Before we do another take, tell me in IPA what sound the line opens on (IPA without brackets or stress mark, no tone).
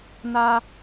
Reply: n